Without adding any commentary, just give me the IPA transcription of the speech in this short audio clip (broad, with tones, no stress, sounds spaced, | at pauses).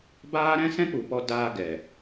b aː˦ ɾ ɛ̃˦ s ɛ̃˦ k͡p u˨ p ɔ˧ d aː˧ ɡ ɛ˨